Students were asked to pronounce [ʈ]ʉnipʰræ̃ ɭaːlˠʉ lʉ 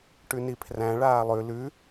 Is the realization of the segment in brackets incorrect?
no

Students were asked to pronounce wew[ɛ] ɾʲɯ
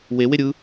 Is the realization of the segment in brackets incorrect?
yes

